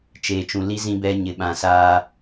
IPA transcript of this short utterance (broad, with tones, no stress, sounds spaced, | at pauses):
t͡ʃ eː˦ t͡ʃ ũ˦ l i˦ z ĩ˦ b ɛ˦ ɲ ɪ˦ ɓ ã˦ s aː˦